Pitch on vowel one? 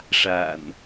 low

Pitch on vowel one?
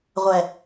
low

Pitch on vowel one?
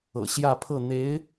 low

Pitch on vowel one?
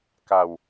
low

